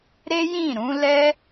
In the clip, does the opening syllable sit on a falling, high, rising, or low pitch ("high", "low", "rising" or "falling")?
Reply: high